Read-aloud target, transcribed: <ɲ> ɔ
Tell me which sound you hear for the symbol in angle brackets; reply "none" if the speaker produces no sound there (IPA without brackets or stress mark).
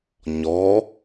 ɲ